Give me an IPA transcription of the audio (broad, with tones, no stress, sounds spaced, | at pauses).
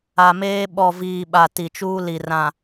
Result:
a˨ m eː˦ ɓ ɔ˨ v iː˨ ɓ a˨ t i˨ t͡ʃ uː˦ l i˨ r ã˨